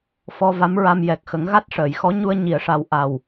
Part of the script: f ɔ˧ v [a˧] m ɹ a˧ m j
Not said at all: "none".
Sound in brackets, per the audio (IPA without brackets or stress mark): a˧˥